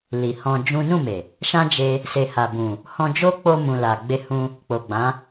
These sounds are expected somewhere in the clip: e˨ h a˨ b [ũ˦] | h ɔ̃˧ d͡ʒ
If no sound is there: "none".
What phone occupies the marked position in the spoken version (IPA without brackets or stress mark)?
ũ˨